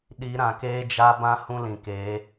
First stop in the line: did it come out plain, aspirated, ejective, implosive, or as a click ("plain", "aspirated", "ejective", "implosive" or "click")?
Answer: implosive